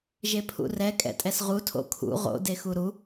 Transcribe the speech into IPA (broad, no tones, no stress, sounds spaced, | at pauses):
ʒ e pʰ ṵ r ɛ kʼ ɛ̰ tʼ ɛ s ʁ u tʰ o̰ kʰ ṵ ʁ o̰ d e x u ɾ u